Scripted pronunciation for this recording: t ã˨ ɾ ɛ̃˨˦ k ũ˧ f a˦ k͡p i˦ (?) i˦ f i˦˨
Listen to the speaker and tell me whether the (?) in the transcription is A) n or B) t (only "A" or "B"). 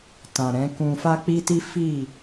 B